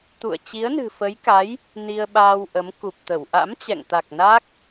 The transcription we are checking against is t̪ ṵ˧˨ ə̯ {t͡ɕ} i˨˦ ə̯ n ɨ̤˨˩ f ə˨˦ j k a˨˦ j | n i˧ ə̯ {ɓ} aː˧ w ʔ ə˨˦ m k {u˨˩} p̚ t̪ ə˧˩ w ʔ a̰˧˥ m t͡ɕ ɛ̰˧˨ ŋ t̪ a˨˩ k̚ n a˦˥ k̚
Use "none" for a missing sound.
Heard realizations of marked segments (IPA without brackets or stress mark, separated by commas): t͡ɕ, ɓ, u˨˩